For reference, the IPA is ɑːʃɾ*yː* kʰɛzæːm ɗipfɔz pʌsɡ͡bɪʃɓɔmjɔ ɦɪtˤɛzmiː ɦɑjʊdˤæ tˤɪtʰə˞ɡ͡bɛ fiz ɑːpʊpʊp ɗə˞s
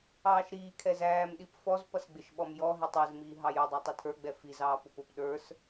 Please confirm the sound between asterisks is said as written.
no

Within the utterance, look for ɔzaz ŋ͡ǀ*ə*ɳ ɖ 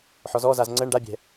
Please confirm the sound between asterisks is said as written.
yes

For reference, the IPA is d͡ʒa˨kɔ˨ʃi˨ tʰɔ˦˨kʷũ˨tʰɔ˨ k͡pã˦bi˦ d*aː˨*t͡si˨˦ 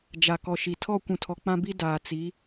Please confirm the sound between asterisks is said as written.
yes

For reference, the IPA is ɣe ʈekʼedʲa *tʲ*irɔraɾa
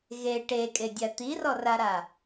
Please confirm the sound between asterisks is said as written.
no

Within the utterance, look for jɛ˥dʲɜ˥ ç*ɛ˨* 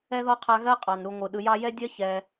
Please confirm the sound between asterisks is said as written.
yes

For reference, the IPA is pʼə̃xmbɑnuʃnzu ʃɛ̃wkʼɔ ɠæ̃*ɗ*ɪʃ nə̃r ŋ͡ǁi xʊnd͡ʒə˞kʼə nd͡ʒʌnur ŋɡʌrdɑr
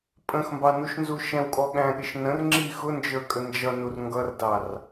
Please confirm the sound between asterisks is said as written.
no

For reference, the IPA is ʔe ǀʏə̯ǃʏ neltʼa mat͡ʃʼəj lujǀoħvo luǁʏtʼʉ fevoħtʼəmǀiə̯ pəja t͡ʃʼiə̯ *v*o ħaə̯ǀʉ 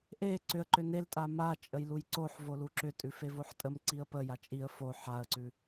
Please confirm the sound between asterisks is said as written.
no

